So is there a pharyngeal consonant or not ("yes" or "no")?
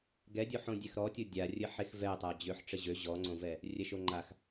yes